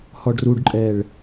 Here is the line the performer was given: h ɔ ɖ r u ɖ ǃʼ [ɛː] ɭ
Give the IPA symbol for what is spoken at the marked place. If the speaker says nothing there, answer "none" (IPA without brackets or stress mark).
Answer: ɛː